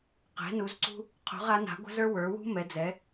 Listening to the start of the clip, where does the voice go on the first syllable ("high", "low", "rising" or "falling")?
rising